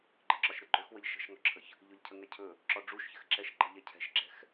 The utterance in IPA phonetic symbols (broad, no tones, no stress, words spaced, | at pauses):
ɡ͡ǃɘǁɒʃɾɘɡ͡ǃɵx wəʎʃə̤ʃŋɔǁʰəç | ʎɵʎcʰəŋɛcʰɵ | ǁɔɖ͡ʐuʃçɘxǁɛʃ ǃə̤ʎɛcʰɛ̤ʃɡ͡ǁɛ̤x